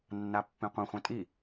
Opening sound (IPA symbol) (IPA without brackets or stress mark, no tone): nː